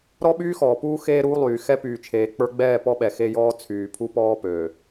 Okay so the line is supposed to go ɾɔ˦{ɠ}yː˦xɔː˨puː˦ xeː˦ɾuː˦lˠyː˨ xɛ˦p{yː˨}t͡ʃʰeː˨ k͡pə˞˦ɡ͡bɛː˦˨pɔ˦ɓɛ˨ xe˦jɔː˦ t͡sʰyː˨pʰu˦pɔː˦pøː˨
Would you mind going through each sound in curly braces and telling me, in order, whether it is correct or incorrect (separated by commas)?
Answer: incorrect, correct